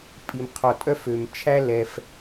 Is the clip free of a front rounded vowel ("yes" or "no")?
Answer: no